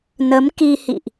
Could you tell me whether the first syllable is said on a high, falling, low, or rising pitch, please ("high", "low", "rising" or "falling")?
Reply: rising